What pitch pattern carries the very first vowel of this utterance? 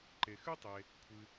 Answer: low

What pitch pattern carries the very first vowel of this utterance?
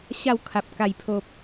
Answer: falling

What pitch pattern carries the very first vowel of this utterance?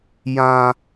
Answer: high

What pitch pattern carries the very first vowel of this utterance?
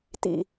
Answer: low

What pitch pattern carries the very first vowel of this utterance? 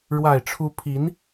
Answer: low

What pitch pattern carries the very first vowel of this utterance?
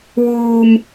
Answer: high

